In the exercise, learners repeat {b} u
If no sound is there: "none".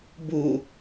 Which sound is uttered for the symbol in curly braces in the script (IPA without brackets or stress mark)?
b